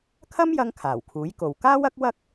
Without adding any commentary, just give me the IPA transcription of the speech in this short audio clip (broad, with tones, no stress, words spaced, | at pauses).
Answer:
kʰɐ˥mjɐ˧ŋ kʰaː˨˩wkʰuː˨˥jko˨w kaː˥wɐ˥k̚ wɐ˥k̚